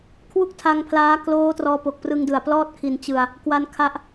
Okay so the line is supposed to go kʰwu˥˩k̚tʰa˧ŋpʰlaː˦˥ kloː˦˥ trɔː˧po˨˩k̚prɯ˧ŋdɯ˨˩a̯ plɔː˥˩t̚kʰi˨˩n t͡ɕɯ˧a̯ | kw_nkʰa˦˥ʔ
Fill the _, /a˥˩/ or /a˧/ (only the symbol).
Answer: a˧